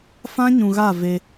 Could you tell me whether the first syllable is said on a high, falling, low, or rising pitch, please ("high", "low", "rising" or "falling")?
high